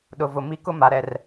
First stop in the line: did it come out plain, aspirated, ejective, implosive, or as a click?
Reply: implosive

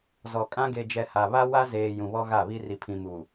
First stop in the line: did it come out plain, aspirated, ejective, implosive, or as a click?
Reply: ejective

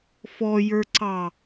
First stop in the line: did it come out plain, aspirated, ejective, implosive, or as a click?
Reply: click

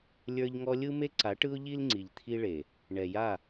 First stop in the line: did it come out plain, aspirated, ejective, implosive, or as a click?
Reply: click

